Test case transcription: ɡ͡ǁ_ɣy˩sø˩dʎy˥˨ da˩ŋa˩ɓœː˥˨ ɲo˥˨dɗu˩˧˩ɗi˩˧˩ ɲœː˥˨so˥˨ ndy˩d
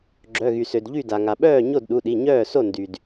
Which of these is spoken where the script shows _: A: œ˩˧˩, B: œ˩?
A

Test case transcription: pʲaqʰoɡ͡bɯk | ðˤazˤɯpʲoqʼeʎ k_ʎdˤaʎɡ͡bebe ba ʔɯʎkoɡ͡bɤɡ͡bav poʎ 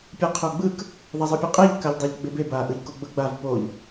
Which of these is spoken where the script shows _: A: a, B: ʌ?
A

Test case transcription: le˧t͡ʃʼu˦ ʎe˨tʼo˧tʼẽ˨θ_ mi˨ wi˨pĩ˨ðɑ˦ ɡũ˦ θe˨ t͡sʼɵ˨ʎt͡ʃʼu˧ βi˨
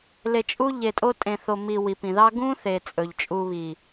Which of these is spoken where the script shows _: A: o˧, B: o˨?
B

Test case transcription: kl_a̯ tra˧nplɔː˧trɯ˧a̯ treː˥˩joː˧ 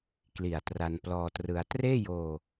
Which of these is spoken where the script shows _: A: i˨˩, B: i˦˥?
A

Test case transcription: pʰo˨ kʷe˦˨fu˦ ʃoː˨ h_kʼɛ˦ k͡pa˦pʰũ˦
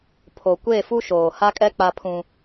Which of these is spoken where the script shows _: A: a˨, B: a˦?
B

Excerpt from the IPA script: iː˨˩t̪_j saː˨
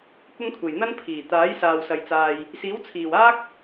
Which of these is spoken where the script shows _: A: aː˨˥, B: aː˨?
A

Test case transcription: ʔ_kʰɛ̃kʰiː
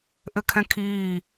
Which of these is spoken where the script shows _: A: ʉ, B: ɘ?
B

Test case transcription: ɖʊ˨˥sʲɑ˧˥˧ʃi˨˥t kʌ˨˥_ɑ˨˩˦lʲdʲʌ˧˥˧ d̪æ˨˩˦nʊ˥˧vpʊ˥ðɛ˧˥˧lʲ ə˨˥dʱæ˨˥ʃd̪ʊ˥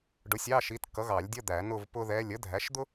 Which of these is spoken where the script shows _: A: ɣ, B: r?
A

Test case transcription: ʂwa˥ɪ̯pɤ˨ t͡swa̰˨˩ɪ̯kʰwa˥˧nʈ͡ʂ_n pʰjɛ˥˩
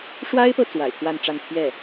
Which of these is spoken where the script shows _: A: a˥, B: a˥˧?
B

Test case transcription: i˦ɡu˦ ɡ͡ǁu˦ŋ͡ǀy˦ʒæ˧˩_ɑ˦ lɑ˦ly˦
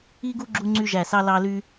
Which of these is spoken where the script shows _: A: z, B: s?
B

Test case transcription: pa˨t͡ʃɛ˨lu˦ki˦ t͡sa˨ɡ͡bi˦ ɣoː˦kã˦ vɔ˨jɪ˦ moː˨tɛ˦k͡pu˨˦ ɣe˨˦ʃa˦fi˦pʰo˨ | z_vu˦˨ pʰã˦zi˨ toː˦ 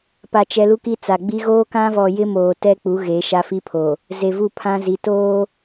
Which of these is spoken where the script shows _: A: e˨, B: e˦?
A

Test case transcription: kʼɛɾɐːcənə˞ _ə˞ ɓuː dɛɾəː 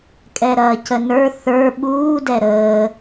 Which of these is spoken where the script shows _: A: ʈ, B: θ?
B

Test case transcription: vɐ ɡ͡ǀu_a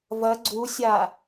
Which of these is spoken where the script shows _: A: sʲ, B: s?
A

